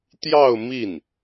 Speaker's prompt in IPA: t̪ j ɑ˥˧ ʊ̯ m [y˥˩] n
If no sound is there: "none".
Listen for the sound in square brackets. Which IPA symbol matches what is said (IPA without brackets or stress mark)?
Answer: i˥˩